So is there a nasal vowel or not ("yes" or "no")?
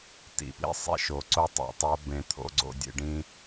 yes